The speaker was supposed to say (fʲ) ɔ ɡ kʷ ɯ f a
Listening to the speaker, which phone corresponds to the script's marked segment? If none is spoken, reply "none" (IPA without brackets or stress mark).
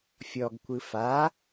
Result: fʲ